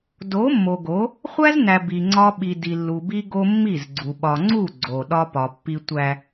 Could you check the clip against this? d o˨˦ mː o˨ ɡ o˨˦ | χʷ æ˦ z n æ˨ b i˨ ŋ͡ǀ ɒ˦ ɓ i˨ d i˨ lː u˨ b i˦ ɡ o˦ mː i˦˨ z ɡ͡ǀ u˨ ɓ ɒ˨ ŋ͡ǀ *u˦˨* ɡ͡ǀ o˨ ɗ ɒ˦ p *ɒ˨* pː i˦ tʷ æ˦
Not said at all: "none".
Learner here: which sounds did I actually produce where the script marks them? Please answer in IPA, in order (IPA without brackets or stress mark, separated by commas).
u˦˨, ɒ˨